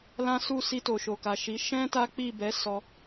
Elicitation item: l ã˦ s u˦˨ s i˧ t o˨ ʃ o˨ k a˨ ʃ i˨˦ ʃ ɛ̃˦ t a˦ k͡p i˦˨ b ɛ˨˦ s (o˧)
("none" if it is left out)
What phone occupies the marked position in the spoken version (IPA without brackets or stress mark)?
ɔ˧